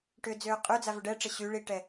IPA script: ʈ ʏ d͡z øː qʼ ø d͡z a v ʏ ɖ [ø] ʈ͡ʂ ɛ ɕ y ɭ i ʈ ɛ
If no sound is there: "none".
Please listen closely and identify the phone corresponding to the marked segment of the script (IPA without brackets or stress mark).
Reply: ɛ